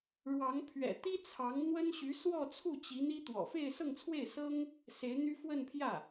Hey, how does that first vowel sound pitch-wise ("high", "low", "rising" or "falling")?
rising